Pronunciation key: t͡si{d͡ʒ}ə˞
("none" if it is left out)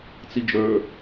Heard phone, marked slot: d͡ʒ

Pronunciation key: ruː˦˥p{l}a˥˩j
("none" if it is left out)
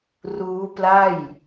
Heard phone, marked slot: l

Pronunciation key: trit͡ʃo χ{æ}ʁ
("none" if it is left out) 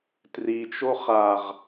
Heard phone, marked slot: a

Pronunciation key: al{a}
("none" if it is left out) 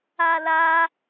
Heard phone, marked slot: a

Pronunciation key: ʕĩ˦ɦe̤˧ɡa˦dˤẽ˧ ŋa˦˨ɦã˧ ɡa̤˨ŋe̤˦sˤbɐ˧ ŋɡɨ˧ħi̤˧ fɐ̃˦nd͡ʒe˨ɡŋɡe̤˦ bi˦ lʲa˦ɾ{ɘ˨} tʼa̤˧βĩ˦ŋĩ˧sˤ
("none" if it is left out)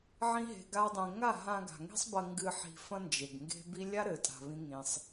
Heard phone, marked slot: ɘ˨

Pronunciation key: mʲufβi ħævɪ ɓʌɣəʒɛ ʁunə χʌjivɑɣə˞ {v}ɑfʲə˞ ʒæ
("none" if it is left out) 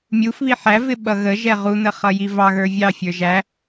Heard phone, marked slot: vʲ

